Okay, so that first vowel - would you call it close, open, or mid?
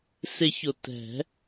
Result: close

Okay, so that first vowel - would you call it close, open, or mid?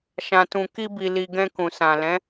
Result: open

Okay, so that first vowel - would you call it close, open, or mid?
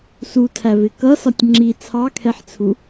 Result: close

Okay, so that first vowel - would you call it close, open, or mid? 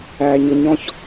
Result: open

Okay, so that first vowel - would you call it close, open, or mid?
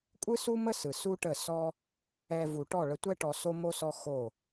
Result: close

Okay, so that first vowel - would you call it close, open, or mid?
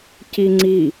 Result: close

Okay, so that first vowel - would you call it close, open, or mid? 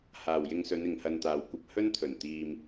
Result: open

